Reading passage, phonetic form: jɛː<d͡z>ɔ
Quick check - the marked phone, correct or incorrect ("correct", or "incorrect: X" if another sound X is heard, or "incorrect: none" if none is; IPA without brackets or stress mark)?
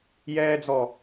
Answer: correct